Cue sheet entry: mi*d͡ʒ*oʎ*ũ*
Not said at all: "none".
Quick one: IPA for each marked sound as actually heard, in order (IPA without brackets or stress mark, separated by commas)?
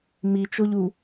t͡ʃ, u